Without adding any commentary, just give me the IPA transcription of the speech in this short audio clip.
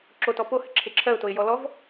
ǁ o t ɔ p o h ɘ ǁʰ e ǁʰ ɜ ʊ̯ t o ɪ̯ j ɔ l ɔ v

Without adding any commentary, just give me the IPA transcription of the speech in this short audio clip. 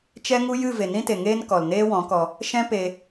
t͡ʃ ɛ˦ ŋ u˦ j ɨ˦˨ v e˨ n ĩ˦ t e˨ ŋ eː˧ n k ɔ˨ l n eː˦ w ɔ̃˨˦ k ɔ˧ | ʃ ɛ̃˦ p e˧

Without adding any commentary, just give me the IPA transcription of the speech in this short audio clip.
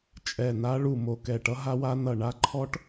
t͡ʃʼ ɛ˧˩ n a˦˥ ɭ u˧˩ m o˧˩ k ɛ˧˩ ʈ ʌ˦˥ ɦ a˦˥ w a˦˥ n ʌ˧˩ ɳ a˦˥ ǃʰ ɔ˦˥ ʈ

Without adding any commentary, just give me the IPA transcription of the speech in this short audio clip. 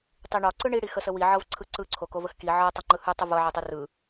tˤ i ɳ ɒ ǀ ɯ ɳ i ɽ i x ə s ə w i ʕ ɤ v ǀʰ ɯ ǀ ɯ ǀʰ o k o v ə x k i ʕ ɤ tˤ ɤ ŋ͡ǃ ɯ h ɯ tˤ ə v ɤ ʕ i tˤ ɯ r ɯ

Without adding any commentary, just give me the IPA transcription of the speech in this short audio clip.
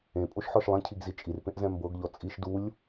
ẽ pʼ o ʃ ħ ɔ ʃ lˠ ẽ cʰ i ɡ z i t͡ʃʼ i r p ẽ ʔ z ɛ̃ m b ɤ ɡ ʎ ɔ t͡sʼ i ʃ d u lʲ

